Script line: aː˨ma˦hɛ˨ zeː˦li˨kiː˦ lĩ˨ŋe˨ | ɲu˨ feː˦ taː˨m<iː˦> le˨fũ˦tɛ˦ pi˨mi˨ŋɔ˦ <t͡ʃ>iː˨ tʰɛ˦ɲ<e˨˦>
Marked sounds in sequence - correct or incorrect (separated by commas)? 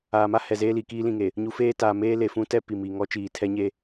incorrect, correct, incorrect